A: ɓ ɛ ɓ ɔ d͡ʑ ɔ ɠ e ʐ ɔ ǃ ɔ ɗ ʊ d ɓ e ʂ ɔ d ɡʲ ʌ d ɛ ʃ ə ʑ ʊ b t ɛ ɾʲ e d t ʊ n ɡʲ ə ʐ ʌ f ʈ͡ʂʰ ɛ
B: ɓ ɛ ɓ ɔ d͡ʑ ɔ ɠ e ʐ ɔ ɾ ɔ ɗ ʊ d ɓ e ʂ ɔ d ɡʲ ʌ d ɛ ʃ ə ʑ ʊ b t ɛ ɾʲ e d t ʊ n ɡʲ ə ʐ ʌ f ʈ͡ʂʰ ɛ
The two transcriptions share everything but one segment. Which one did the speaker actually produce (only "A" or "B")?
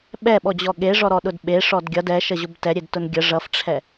B